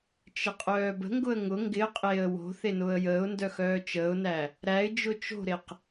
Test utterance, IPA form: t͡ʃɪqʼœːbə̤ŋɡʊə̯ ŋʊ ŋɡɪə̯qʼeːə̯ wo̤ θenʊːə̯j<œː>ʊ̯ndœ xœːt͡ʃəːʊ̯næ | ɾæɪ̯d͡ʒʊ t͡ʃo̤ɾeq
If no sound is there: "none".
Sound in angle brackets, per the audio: əː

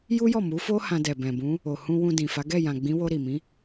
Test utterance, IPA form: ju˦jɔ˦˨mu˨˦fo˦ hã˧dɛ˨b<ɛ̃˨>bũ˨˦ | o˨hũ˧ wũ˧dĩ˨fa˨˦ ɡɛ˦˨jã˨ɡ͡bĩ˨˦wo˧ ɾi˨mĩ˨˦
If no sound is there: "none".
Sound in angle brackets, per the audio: ɛ̃˨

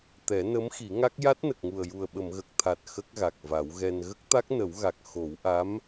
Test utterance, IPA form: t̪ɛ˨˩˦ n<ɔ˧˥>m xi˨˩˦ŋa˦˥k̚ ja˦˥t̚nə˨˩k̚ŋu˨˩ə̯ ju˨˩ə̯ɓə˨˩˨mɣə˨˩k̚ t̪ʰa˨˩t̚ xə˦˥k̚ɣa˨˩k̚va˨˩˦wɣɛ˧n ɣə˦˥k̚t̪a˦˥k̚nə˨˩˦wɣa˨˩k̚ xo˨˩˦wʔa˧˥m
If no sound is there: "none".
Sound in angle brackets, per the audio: ə˧˥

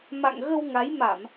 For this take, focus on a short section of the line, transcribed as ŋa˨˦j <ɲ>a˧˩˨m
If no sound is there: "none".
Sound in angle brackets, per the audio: m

